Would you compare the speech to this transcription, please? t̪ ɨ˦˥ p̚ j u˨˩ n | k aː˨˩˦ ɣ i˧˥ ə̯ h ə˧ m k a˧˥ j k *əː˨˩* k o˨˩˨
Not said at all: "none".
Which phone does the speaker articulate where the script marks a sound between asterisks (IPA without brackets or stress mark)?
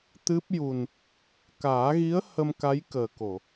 əː˨˩